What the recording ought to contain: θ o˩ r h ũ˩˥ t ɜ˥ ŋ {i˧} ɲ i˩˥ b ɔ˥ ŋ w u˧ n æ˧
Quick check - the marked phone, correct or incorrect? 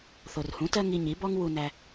correct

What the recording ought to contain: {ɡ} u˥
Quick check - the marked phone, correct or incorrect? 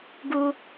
correct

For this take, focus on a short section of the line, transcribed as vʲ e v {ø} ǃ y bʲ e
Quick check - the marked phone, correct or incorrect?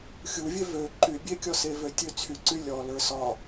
correct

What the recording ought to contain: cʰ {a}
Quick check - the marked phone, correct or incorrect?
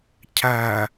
incorrect: æ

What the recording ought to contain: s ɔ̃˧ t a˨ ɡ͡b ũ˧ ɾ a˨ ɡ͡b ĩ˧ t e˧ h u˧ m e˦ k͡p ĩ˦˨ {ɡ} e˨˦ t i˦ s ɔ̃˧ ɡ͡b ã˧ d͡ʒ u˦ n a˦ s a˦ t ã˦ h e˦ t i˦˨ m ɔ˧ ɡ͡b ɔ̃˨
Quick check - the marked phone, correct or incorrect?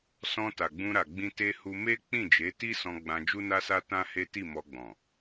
incorrect: d͡ʒ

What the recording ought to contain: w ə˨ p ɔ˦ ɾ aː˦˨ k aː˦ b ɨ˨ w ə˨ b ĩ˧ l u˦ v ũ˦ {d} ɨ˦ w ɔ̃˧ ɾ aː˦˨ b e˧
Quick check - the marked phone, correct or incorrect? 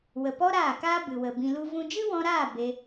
incorrect: d͡ʒ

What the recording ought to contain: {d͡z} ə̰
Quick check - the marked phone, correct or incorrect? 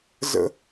incorrect: z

